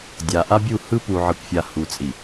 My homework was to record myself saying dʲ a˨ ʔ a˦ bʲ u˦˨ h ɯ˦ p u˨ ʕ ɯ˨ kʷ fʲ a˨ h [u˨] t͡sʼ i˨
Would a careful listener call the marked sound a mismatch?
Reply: no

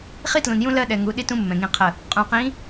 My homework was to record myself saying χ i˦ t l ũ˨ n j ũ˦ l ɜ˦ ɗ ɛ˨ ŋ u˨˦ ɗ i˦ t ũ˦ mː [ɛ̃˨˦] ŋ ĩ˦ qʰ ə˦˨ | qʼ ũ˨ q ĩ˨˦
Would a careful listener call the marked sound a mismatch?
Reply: yes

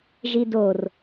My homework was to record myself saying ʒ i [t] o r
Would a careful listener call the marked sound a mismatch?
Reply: yes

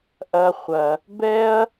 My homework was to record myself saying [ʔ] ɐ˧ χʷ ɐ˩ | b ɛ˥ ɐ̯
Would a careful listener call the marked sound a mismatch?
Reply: no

